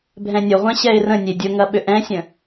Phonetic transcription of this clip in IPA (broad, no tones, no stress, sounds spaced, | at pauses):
bʱ ɛ̃ nʲ ʊ ʁʷ ɛ̃ ɕ ɛ ɪ̯ r ə̃ nʲ e dʲ ʊ ŋ ɐ ɓ ʏ ʔ ɛ̃ sʲ ə̃